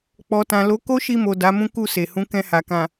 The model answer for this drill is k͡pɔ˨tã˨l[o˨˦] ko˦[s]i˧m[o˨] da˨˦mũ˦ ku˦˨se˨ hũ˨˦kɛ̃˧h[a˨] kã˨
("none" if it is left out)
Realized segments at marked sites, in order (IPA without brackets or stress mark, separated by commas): o˨˦, ʃ, o˨, a˨